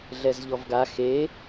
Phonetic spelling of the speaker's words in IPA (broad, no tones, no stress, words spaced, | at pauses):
ɮɛzʎɔvɡa xe